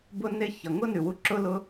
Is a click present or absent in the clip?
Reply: present